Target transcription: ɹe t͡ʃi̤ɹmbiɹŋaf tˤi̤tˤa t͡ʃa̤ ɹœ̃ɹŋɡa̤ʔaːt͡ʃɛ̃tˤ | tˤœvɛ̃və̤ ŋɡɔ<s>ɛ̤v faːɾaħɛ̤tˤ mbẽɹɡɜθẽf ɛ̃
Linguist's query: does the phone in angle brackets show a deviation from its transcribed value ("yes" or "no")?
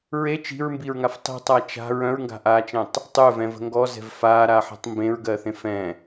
yes